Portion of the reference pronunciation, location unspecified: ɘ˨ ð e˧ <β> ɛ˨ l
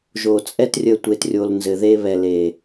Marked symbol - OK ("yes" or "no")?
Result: yes